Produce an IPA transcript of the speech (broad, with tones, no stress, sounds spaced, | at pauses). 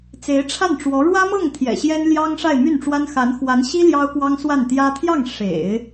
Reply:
t͡s e˧˥ ɪ̯ ʈ͡ʂʰ a˥˩ n ʈ͡ʂ w ɔ˧˥ ɻ w ä˥ m ɤ˥˩ ŋ t̪ʰ j ɛ̰˨˩ ɕ j ɛ˥ n l j ɑ˥ ŋ ʂ a˥˧ ɪ̯ m y˥˩ n ʈ͡ʂ w a˥ n x a˧˥ n x w a˧˥ n ɕ i˥ l j ɑ˥ ʊ̯ k w ɑ˥ ŋ s w a˥˩ n t̪ j ä˥ t̪ʰ j ɑ˥˩ ŋ ʂ ḛ˨˩˦ ɪ̯